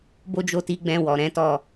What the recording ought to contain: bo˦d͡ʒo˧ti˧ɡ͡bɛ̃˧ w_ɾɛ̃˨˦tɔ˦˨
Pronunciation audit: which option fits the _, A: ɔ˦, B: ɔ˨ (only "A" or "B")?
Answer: B